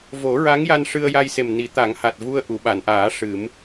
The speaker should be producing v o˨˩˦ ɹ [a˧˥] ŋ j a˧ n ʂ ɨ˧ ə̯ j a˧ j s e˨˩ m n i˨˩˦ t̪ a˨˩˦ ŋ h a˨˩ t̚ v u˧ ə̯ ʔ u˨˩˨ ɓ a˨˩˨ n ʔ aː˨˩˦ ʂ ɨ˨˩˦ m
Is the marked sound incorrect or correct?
correct